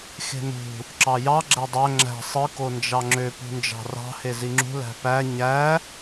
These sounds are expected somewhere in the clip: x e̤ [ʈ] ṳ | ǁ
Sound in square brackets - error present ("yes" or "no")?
yes